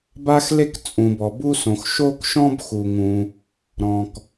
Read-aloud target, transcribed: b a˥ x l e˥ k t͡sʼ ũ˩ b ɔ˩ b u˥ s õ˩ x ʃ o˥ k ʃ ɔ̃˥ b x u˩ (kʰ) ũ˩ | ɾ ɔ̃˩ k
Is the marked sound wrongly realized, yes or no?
yes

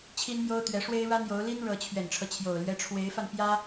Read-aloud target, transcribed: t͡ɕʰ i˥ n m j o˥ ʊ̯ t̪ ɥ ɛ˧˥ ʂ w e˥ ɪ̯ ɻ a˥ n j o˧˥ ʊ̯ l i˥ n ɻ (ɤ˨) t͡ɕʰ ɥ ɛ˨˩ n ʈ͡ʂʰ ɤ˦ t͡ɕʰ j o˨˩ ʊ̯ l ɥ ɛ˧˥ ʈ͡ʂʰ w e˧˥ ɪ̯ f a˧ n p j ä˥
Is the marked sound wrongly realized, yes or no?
yes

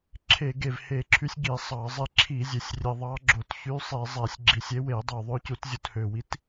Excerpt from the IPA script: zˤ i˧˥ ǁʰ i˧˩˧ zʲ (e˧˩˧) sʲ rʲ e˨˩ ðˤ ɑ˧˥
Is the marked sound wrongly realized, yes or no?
yes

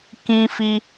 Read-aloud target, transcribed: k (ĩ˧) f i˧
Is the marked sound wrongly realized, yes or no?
no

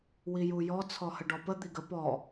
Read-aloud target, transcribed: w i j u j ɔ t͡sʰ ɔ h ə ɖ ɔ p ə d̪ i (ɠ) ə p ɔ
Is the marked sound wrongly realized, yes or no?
yes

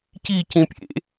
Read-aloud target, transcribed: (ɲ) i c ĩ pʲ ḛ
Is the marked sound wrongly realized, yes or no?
yes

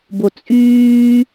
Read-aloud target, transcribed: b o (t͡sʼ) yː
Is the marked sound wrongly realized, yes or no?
no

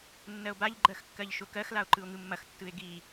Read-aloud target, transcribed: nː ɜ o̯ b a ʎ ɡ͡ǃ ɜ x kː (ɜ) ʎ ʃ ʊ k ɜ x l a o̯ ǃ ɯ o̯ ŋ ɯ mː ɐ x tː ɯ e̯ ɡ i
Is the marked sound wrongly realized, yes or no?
no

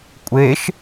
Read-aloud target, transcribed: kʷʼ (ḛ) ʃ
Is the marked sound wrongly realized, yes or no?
yes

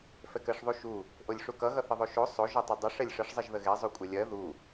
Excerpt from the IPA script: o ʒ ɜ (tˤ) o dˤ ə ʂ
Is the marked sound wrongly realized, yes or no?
no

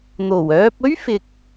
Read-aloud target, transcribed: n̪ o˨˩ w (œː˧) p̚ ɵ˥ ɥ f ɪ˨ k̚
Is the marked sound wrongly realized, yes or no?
no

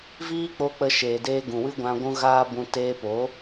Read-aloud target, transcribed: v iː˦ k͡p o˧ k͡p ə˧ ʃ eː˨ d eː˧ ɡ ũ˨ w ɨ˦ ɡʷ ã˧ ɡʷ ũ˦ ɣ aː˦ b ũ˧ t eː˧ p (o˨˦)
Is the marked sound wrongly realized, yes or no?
no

